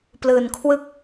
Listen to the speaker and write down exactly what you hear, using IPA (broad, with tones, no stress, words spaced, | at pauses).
plɯː˨˩nkʰwɯ˥˩k̚